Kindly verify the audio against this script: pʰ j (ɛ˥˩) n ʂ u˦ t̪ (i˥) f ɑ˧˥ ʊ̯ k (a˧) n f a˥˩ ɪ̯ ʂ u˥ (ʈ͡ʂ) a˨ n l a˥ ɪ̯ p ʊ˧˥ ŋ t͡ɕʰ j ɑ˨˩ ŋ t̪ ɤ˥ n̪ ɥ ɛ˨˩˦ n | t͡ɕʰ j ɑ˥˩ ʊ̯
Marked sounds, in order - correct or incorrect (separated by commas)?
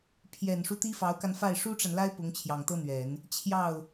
incorrect, correct, correct, correct